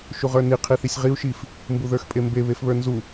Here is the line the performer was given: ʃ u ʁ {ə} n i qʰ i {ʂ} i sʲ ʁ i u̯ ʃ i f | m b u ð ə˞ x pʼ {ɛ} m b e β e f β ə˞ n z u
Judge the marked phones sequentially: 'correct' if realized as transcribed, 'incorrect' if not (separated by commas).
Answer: incorrect, incorrect, incorrect